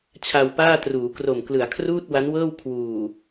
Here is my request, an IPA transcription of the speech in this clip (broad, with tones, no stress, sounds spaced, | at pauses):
t͡ɕʰ a˧ w p aː˥˩ t r uː˩˦ k r o˨˩ m k l ɯ˩˦ a̯ kʰ r uː˥˩ t̚ w a˦˥ n w ɤː˥˩ w kʰ w uː˨˩